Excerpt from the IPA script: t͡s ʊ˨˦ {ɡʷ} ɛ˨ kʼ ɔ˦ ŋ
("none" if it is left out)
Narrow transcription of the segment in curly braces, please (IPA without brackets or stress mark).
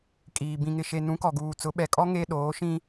ɓ